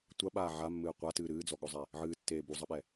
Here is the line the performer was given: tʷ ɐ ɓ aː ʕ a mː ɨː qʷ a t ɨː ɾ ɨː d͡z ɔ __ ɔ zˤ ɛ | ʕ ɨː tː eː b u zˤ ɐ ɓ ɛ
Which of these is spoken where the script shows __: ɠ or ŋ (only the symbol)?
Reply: ɠ